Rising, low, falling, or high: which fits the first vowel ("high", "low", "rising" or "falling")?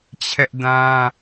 high